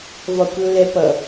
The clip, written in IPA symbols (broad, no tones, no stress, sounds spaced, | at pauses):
v ɒ kʷ lː ɛ p ʌ